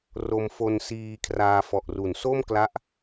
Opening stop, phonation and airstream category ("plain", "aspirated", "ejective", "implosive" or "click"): aspirated